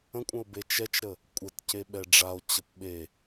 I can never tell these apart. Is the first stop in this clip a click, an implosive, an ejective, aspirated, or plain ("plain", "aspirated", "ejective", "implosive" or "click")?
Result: ejective